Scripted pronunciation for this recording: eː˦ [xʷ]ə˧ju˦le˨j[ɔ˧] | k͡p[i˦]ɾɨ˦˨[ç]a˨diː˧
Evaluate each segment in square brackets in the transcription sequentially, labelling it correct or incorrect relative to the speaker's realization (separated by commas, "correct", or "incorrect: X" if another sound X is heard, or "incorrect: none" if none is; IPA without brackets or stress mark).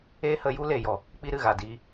incorrect: h, incorrect: ɔ˨, correct, incorrect: ɣ